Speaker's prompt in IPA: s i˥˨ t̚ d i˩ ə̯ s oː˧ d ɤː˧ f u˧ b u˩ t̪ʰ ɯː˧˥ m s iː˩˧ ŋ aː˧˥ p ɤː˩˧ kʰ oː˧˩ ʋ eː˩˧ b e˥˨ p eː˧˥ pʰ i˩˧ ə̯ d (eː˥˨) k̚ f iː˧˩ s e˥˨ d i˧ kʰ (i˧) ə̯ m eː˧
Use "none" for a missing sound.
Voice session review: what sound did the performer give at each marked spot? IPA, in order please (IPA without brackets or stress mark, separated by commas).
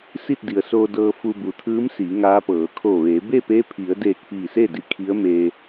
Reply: eː˧˩, i˧˥